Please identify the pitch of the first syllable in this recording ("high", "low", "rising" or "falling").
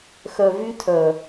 low